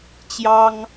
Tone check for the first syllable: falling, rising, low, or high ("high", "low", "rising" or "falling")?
high